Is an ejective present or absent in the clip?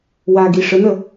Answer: absent